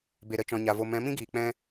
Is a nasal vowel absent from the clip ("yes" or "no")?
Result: no